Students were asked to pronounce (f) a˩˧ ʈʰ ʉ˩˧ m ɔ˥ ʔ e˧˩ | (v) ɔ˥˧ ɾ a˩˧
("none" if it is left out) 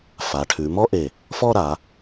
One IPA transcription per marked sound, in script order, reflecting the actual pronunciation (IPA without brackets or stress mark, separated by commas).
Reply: f, f